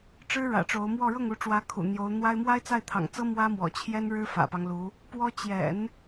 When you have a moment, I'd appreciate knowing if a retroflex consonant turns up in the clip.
yes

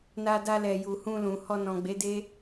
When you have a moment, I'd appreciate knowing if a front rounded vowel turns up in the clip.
no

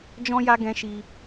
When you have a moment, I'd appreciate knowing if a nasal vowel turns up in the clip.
yes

